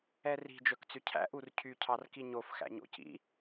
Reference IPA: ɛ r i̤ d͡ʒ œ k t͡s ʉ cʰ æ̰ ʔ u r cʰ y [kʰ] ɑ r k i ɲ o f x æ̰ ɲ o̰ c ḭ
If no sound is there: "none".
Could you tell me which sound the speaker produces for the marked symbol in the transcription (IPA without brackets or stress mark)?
cʰ